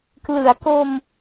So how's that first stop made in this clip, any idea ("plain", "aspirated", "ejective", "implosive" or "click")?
plain